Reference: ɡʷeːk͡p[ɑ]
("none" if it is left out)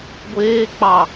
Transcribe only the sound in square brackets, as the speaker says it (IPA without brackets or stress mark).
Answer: ɑ